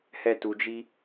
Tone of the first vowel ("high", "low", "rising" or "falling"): high